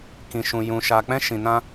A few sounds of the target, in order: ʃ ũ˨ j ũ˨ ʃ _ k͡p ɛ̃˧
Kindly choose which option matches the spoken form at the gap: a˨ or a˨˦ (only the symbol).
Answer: a˨